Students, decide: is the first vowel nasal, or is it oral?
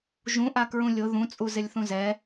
nasal